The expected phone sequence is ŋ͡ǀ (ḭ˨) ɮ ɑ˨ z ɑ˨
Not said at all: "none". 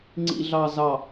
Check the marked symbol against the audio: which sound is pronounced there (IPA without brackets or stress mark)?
ḭ˨